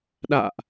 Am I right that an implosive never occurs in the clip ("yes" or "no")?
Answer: no